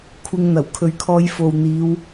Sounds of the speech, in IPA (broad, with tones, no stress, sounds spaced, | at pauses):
kʷʰ ɪ˧ ŋ n̪ ɐ˨˩ w kʰ ɵ˧ ɥ kʰ ɔː˧ j f o˨ w n̪ iː˨˧ w